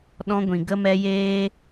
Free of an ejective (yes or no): yes